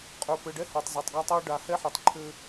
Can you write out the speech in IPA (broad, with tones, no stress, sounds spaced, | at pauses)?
qʼ ə˞˨ p ɘ˨ ɖ ɛ˦ h ə˞˨ tˤ z ɔ˨ tˤ ɡ a˦ tˤ ə˞˦ ɖ a˨˦ h ɛ˦ ħ ɛ˨ tˤ ǃʰ ɘ˦